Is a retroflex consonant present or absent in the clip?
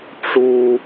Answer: present